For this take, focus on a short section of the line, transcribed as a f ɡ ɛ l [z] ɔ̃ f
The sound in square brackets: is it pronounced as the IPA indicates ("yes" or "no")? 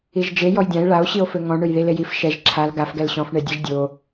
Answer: no